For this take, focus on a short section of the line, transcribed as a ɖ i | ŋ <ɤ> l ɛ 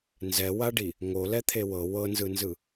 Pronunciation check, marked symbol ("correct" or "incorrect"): incorrect